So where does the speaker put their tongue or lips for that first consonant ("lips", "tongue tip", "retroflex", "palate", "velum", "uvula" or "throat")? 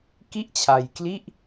velum